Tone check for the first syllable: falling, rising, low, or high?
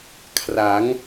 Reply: rising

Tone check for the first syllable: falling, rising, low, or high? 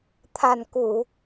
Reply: low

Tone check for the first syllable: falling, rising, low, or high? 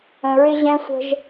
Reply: low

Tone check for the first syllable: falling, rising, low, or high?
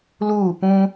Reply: falling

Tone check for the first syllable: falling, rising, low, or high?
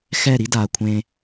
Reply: falling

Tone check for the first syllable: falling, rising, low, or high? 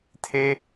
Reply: high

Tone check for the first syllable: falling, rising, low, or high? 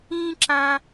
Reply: high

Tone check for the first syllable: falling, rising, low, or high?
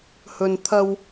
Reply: low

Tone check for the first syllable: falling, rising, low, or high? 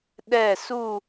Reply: falling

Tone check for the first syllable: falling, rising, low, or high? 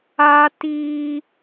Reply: high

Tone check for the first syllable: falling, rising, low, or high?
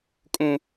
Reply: low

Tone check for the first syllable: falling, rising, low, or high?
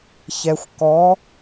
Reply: low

